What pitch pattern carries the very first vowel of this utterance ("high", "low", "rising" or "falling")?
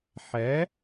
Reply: rising